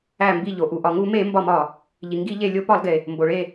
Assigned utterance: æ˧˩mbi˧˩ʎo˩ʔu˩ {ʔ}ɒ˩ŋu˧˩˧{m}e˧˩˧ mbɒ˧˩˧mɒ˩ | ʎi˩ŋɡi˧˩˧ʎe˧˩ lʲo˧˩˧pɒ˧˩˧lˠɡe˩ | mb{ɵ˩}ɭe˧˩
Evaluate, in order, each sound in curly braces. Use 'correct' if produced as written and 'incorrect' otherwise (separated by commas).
correct, correct, incorrect